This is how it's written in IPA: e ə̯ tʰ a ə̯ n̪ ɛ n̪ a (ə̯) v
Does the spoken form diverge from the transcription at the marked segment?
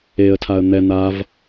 yes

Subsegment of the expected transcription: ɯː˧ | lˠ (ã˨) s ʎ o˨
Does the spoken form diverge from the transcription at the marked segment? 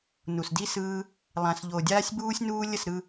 no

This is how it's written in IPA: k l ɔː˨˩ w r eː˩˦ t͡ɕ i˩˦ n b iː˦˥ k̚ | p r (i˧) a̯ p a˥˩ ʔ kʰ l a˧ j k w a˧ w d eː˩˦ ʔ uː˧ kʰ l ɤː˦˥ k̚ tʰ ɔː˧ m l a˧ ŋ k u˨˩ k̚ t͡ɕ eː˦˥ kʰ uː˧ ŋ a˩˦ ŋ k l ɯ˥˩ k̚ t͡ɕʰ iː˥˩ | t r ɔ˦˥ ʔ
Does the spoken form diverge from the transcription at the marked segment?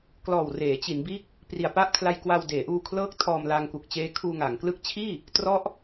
yes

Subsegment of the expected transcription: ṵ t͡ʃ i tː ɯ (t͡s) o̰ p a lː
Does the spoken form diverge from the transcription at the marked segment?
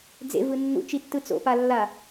no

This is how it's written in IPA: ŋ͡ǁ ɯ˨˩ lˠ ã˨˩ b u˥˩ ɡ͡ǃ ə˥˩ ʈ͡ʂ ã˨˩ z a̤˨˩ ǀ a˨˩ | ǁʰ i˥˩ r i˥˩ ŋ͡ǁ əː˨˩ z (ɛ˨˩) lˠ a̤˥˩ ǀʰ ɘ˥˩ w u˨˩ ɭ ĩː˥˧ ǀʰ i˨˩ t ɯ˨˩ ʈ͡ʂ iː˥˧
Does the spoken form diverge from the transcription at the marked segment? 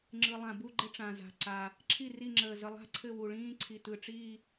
yes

